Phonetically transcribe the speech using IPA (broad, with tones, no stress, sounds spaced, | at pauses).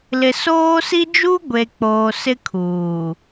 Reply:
l ɪ˨ s oː˦ s i˦ d͡ʒ u˦ ɡʷ e˨ k͡p oː˨ s ɪ˦ kʰ uː˨